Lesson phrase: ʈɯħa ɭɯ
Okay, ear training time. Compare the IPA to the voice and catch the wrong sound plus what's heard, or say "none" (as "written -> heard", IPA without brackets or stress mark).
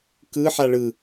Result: ʈ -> k